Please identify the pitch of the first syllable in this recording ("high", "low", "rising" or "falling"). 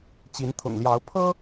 rising